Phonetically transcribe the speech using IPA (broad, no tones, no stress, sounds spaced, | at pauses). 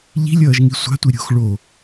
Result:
ʎ i̤ lʲ ʌː ʒ ŋ i sʷ a̤ tʷ i ɾʲ o̤ x ɭ o